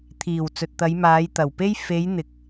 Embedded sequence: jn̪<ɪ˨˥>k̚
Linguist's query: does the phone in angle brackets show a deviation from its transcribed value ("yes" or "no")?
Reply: yes